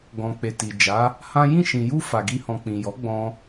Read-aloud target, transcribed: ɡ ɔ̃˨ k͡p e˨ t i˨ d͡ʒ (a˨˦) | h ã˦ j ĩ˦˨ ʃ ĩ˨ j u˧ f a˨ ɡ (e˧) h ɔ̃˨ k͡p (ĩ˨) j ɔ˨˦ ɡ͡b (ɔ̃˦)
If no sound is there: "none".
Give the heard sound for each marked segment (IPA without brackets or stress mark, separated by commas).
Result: a˨˦, i˧, ĩ˨, ɔ̃˦